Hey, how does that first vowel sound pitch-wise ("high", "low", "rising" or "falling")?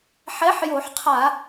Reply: rising